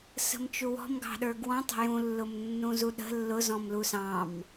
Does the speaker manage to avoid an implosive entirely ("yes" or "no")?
no